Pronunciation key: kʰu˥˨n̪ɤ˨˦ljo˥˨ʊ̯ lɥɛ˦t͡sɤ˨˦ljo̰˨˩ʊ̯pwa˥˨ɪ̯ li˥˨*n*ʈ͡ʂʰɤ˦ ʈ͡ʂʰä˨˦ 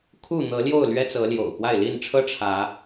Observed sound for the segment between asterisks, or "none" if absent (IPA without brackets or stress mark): n